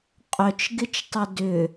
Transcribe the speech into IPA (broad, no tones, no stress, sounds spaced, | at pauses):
qʼ œ t͡ʃ ɡ ɪ t͡ʃ tˤ ʊ d ʏ